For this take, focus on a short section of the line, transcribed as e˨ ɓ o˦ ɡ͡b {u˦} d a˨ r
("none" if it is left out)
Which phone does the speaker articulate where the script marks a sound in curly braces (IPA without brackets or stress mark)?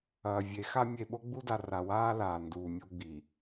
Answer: u˦